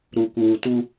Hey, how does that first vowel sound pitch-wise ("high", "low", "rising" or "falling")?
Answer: low